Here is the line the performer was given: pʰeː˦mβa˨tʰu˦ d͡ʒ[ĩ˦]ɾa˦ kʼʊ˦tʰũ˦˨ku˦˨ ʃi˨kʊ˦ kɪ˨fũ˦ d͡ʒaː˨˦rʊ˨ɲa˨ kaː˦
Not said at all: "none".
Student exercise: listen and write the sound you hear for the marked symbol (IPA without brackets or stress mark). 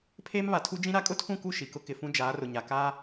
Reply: ĩ˦